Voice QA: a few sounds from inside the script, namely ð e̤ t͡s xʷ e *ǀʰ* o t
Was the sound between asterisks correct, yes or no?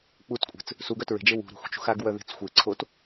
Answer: yes